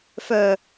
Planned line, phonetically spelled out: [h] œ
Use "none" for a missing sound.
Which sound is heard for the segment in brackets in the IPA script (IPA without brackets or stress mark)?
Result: f